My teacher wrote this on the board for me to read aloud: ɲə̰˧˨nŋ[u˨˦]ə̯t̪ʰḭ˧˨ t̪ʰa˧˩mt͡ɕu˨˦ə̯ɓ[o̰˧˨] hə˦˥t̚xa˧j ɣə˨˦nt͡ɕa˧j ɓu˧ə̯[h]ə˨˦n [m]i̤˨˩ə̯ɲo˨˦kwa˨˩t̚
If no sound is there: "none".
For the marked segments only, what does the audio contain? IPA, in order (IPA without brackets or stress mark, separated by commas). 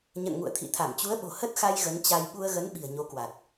ṵ˧˨, o̤˨˩, ɣ, ɓ